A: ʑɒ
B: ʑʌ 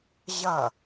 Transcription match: B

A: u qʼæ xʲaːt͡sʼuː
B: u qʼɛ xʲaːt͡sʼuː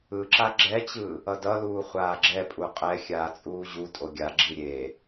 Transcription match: B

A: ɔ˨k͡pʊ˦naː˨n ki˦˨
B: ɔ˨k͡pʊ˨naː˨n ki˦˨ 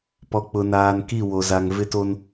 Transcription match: B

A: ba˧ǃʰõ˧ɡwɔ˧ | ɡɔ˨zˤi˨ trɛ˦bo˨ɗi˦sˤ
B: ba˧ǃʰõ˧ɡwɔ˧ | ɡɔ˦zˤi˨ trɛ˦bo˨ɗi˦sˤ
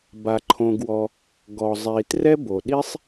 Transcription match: A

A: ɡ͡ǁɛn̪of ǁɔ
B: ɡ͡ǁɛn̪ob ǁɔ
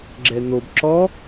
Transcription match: B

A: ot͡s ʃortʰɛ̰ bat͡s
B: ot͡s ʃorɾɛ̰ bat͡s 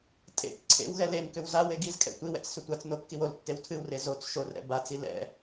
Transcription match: B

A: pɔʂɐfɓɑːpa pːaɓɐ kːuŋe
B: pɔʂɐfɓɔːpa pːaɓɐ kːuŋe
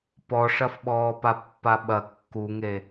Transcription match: B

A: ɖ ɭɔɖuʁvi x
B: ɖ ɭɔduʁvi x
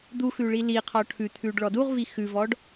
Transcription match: B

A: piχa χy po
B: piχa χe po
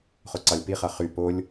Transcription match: A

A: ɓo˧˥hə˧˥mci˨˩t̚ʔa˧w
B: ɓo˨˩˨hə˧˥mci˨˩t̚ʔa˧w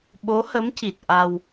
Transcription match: A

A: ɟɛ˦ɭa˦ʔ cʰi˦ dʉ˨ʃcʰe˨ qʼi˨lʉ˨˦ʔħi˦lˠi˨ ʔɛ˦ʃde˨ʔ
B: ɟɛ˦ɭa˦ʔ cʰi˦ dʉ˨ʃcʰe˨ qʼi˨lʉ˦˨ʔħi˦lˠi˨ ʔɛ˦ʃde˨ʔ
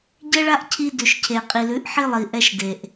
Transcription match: A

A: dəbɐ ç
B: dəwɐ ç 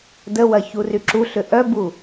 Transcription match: B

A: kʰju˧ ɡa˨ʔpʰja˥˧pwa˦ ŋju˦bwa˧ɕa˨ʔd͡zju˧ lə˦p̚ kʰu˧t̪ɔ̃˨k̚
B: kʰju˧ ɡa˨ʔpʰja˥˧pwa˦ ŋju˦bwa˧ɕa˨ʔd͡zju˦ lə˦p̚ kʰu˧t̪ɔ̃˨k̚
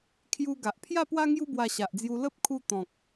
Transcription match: A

